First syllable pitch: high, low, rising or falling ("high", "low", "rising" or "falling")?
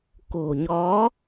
low